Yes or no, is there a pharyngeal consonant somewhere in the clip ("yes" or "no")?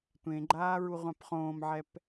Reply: yes